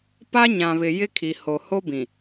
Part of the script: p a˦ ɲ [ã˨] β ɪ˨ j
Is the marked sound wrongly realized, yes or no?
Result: no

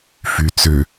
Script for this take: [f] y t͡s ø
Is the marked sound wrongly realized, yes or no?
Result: no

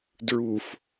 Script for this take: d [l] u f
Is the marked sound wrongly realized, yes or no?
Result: yes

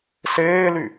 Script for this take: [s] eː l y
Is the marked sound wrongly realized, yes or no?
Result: no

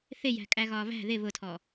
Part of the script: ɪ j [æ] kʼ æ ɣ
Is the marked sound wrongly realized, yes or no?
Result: yes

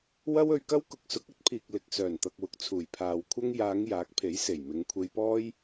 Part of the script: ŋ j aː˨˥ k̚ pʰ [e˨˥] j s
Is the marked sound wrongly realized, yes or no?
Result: no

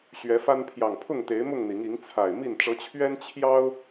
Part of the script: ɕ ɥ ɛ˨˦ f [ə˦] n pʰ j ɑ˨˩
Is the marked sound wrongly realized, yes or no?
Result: yes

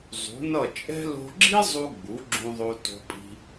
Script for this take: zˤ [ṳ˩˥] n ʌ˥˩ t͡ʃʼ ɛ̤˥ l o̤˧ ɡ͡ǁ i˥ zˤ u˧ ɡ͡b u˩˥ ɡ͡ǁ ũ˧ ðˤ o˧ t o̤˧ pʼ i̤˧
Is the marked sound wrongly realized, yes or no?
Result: no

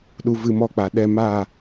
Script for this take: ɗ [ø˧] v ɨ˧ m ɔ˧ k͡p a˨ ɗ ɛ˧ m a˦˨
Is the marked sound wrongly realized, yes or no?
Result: yes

